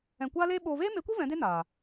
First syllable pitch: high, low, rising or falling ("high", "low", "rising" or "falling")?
low